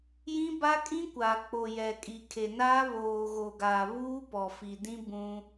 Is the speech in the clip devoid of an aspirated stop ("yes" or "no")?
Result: no